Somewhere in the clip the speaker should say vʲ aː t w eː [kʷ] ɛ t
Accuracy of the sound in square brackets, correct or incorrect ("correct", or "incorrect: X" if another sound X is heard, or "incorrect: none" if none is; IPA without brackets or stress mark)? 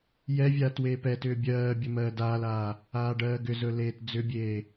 incorrect: p